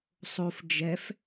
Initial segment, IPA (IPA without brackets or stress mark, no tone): sˤ